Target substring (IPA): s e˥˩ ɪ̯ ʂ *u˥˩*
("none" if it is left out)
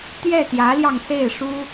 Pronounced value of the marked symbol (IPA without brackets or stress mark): u˥